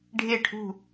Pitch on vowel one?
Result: falling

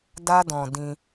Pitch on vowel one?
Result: high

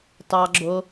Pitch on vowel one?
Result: low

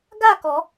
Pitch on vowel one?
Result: falling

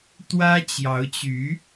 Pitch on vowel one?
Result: high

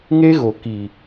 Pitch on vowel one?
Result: high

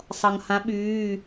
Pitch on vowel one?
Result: low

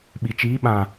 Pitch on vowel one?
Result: low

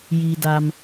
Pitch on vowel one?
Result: low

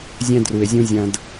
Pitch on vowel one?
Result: high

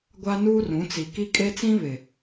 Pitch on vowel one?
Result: high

